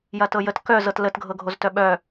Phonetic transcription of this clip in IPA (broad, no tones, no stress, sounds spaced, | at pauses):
j ɐ t ɤ j ə t k œ z ɤ t l ə t ɡʱ ɤ ɡʱ o z t œ ɓ œ